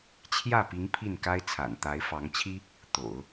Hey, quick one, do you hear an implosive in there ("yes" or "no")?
no